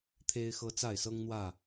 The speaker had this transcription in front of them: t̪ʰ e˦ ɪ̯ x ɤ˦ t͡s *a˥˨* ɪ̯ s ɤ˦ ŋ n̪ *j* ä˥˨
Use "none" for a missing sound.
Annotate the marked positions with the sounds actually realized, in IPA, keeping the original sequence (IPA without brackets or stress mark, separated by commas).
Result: a˥˨, w